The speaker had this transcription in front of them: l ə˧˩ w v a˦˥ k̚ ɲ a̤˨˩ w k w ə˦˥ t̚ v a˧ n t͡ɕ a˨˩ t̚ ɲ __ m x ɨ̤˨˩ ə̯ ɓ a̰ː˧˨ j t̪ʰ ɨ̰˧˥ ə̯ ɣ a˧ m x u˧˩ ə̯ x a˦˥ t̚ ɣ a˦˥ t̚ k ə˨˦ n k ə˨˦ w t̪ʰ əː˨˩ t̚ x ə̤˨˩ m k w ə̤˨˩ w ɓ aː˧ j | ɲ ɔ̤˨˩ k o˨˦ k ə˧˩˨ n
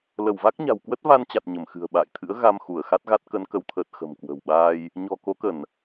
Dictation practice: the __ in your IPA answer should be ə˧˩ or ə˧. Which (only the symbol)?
ə˧˩